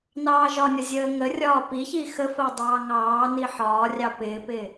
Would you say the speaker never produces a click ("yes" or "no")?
yes